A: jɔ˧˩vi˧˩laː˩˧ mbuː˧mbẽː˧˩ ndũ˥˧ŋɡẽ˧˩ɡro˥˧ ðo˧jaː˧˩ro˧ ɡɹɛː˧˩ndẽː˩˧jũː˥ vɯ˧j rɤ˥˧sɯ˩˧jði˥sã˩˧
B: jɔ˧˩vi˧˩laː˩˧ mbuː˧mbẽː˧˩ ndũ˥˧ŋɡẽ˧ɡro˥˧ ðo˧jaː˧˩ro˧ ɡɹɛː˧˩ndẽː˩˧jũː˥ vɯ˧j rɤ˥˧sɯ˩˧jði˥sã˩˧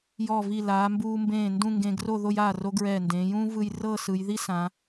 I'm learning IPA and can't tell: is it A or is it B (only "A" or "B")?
B